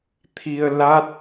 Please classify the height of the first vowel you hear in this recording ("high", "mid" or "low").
high